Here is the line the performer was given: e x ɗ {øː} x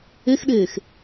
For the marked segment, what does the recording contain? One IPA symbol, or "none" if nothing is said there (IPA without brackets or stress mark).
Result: eː